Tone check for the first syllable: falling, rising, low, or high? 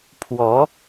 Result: rising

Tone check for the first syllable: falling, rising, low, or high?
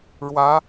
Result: rising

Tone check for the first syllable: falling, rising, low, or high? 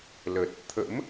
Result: low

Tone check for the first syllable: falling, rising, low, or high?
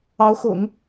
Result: rising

